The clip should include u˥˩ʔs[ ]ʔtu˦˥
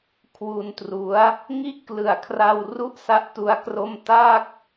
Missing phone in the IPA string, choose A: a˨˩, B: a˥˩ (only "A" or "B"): B